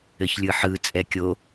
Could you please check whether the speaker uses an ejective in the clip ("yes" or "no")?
yes